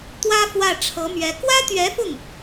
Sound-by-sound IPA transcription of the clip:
t̪ w ä˥ f w ä˥˩ ʈ͡ʂʰ ɤ˧˥ m ɥ ɛ˧˥ k w ä˥ t̪ ɥ ɛ˧˥ f ʊ˥˩ ŋ

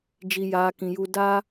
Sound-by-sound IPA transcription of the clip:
d͡ʒ i˨ j aː˨ k ĩ˨ j u˧ d a˦

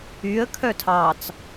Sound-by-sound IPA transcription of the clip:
y ə̯ kʰ œ tʰ ɑ t͡s

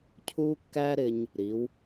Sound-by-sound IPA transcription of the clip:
cʰ u˥ kː æ˥ ɾ ɪ˧ ɲ | ɾ i˩˥ w

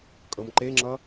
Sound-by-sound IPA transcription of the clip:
kʼ ɤ m ǃ e ŋ͡ǁ ʌ

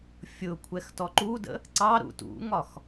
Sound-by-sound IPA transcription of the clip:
fʲ ʊ kʷʰ ɛ x t ɔ ǃ u d ə̰ | ǀ ɑ ɾ ṵ t ṵ ŋ ɒ x

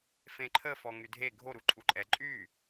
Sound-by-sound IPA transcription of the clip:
f ẽ ǃʰ ə f ɔ ŋ y dʱ e ɡʱ o ɾ u ǃʼ u ǃʼ ɛ ǃʼ y

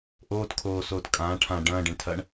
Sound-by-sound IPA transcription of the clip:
ʔ oː t kʰ oː s oː t kʼ ãː ʈʰ ã ɖ ɐ̃ː ɖ ẽ ɳ tʰ ɐ ɳ

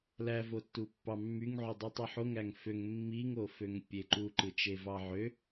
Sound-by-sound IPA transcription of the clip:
l æ v o tː u pː ɑ mː y ŋ ʕ y dˤ ɯ tˤ u ħ o ŋ æ ŋ f ø ŋ mː i ŋ o f ø ŋ pʲ e ǃ u ǃ ɯ t͡ʃ e v ɑ ʕ ø

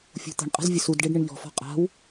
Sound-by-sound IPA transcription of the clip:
fʲ ṳ t̪ ə̤ ɳ qʼ ə̤ z vʲ ə s u d ɖ e ɖ ɳ ɪ ɳ ʎ ɔ̤ f ɔ̤ qʼ a̤ w

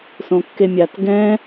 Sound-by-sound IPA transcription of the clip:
s õ kː e mʲ a t ɡ ɛ̃

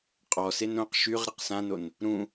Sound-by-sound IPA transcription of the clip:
qʼ ɔ s e n ɾ õ q ʃ y ʁ ɾ e q s ã n o n | ɾ ũ

